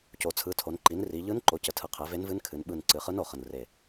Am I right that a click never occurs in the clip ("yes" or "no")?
no